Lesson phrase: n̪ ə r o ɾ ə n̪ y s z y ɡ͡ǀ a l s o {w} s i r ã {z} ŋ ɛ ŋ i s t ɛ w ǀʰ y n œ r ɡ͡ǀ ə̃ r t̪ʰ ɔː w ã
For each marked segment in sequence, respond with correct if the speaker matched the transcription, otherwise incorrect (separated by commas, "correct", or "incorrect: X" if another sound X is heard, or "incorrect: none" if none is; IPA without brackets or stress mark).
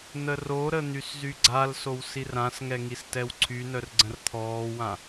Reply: correct, incorrect: s